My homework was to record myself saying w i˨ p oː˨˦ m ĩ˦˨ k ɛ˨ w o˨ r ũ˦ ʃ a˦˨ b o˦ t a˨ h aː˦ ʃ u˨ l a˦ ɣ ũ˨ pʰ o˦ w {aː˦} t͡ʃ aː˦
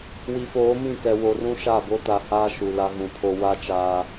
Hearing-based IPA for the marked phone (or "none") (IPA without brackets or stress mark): a˦